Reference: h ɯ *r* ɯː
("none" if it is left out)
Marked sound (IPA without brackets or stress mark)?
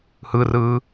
r